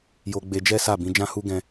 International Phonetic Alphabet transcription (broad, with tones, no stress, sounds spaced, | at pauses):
j o˧ ɡ͡b e˧ d͡ʒ ɛ˦ s a˦˨ b ĩ˨˦ d͡ʒ ã˦ h u˦ ɡ ɛ̃˦